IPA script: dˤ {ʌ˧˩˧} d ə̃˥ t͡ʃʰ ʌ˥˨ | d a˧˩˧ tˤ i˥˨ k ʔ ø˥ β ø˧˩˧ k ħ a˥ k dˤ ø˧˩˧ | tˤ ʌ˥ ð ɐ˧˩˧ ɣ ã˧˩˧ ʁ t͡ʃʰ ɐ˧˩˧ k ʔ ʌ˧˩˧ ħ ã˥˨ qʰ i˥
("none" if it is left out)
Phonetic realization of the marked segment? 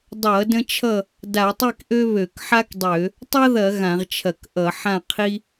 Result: ʌ˧˩˧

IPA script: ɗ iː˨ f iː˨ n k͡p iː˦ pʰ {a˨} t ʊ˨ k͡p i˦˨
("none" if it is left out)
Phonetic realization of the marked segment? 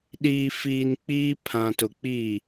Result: ã˨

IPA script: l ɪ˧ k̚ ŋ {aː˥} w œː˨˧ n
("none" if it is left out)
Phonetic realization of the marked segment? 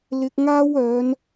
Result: aː˥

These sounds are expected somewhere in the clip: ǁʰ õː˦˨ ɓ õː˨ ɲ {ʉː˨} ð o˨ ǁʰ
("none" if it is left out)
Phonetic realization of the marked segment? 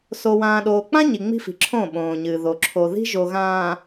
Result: ɨː˨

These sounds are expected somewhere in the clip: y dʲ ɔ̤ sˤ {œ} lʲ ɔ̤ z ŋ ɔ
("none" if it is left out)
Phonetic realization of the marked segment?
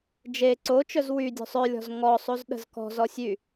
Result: œ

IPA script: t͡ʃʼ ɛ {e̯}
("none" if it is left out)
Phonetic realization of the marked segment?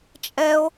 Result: o̯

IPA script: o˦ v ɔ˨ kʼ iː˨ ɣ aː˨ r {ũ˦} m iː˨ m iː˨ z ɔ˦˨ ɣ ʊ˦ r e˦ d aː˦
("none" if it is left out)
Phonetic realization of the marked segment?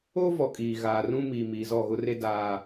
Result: ũ˦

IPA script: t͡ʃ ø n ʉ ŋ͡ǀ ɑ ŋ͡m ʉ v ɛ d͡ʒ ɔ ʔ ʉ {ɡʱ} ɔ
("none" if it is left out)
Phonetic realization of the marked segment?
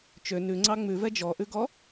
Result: ɡ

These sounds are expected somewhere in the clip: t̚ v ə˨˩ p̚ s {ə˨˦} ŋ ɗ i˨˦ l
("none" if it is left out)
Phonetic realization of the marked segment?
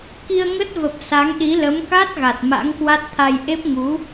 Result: a˨˦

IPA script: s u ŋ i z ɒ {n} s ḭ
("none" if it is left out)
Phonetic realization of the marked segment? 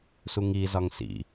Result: ŋ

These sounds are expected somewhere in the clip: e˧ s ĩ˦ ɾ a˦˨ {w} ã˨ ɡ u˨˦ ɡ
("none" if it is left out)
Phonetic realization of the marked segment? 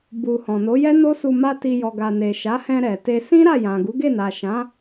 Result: j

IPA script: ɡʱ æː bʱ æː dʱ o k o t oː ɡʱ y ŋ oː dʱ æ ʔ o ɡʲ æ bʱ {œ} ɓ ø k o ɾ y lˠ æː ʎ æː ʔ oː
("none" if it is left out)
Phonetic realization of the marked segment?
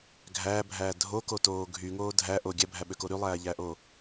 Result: æ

